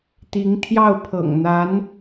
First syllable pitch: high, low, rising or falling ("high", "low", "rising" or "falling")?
rising